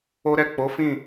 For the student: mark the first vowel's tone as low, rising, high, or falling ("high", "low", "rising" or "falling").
high